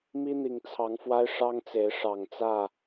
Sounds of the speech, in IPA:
m i˦ n̪ i˨˩ ŋ t͡sʰ ɑ˨˦ ŋ f w a˦ ɪ̯ ʂ ɑ˦ ŋ t͡s e˨˦ ɪ̯ ʂ ɑ˨˩ ŋ t͡s ä˥˨

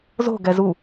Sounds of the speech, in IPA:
z o̤ ɡ ɛ z u

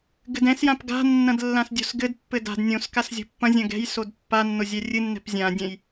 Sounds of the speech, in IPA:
ɡ ɘ d ɛ̃ s j ã p ɡ a̤ nː ɐ̃ d lː ã s dʲ o̤ s ɡ ɘ d pː ɘ d a̤ d nʲ õ s k a s zʲ o̤ pː ɐ̃ zʲ ɐ̃ ɡ ɛ̤ j s o d pː a nː o zʲ ɛ rʲ ɨ nː ɛ̤ p zʲ ã dʲ ɛ̃ j

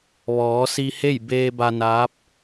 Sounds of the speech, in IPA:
ʋ ɔː˩˧ s i˧ h e˥˨ j b eː˧ b a˧ n aː˧˥ p̚

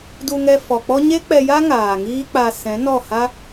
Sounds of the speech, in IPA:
d u˧ ŋ ɛ˧ f ɔ˨ k͡p ɔ˦ ɲ e˦ k͡p ɛ˧ j a˦ ŋ aː˨ ŋ iː˦ k͡p a˧ s ɛ̃˨˦ n ɔ˦˨ h a˦

